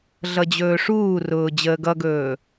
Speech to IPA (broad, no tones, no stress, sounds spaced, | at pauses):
ɮ ʌ d͡ʑ ɵː ʂ uː r ʊː d͡ʑ əː ɡ ʌ ɡ ɵː